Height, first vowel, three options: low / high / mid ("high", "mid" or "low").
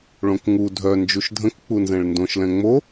mid